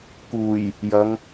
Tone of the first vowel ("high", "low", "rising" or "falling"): low